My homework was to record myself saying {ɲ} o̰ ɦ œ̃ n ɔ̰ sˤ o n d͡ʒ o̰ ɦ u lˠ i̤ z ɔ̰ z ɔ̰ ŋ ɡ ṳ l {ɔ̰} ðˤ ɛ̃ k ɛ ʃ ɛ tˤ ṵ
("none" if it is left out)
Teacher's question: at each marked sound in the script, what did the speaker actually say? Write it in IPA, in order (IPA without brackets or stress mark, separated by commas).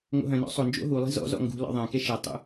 ŋ, ɔ̰